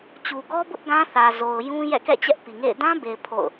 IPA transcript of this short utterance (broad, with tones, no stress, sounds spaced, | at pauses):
t͡ɕ u˨ ɡ ɔ˦ b ʊ˦ ʔ ɡ ã˦ θ ä˨ z o˨ ʊ̯ j ũ˦ j ɛ̰˦˨ k ɛ̰˦˨ t͡ɕ ɛ˦ ʔ p i˨ ŋ ḛ˦˨ ɪ̯ d ã˦ b e˨ ɪ̯ pʰ o̰˦˨ ʊ̯